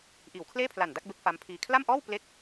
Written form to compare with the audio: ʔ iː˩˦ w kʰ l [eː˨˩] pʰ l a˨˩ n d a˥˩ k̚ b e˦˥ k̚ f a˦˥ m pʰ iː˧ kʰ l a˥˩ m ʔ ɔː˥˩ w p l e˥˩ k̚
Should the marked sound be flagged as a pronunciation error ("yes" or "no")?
yes